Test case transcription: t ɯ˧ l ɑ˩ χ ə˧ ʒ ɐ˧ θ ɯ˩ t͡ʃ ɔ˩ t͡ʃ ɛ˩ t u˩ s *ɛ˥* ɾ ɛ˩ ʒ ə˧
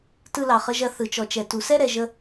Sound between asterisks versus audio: correct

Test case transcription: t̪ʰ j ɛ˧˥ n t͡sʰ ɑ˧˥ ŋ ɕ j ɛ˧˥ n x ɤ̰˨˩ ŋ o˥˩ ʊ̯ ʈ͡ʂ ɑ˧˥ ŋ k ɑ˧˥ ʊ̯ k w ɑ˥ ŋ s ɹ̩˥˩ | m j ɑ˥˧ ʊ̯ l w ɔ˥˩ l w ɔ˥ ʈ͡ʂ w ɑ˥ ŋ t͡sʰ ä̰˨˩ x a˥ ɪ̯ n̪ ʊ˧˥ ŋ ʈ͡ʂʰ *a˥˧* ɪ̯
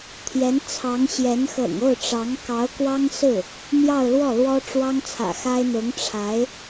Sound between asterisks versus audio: incorrect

